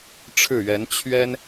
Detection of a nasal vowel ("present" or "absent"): absent